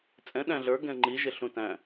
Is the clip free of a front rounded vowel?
yes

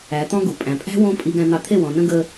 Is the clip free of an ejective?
no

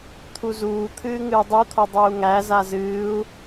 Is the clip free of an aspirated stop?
no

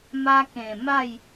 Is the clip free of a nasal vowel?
no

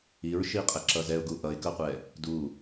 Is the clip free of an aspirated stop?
yes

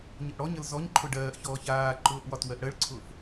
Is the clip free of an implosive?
yes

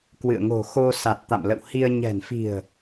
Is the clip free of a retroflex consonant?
yes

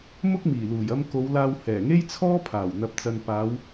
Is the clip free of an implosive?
yes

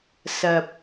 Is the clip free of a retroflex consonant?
yes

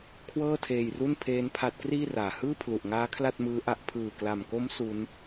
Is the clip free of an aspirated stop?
no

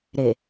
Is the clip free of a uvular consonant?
yes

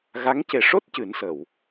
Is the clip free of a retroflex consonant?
no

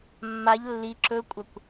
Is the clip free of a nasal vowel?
yes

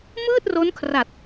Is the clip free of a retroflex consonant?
yes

